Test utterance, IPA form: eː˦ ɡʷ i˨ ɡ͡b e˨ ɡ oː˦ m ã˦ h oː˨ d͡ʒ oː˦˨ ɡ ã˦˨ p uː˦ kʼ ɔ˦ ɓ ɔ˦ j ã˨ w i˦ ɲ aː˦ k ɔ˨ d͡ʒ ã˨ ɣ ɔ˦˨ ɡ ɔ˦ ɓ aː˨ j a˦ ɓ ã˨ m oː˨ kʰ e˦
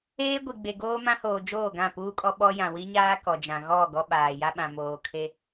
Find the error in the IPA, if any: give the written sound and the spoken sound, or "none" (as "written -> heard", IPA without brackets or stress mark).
none